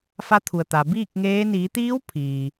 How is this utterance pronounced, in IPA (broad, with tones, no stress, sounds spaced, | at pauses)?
f a˧˥ t̪ʰ u˩ ə̯ t̪ a˩ b iː˥˨ k̚ ŋ eː˧˥ n iː˩˧ t̪ iː˧˥ w pʰ iː˩